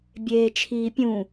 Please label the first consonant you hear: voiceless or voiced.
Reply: voiced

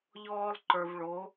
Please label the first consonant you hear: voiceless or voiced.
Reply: voiced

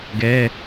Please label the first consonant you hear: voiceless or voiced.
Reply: voiced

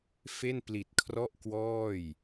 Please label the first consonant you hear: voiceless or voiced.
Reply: voiceless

